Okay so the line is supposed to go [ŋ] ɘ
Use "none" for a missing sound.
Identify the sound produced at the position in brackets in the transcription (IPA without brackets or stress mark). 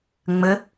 ŋ͡m